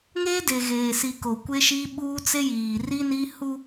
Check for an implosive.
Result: present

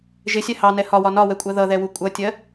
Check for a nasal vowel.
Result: absent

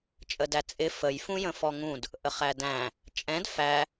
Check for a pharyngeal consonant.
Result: absent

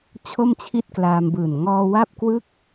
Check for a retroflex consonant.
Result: absent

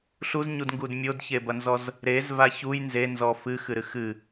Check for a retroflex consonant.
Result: absent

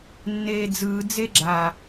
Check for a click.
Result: present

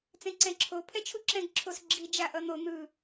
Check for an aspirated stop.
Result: present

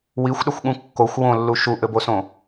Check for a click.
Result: absent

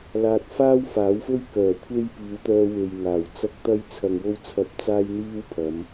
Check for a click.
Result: absent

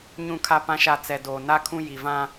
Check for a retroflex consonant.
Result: absent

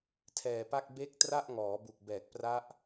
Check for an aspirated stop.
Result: present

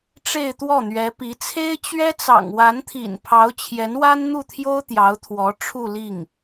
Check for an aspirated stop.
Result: present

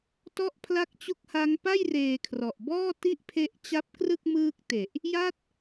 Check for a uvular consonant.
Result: absent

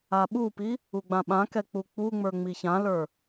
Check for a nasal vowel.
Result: present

